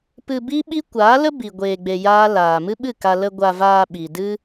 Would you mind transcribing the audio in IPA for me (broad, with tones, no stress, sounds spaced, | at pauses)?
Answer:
p ɨ˧ b i˦ ɓ i˦ kʷ aː˨˦ l ə˦ b i˨ ɡʷ eː˧ ɡ͡b e˧ j aː˦ l aː˨ m ɨ˦ ɓ ɨ˦˨ k a˧ l ə˧ ɡʷ a˧ v aː˧ ɓ i˨ d ɨ˦